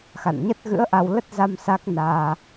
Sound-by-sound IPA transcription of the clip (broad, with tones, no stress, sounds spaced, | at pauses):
x a̰˧˨ n ɲ ə˦˥ t̚ ɣ ɨ̰˧˥ ə̯ ʔ a˧ w l ə˦˥ t̚ z a˧ m s a˦˥ k̚ n aː˧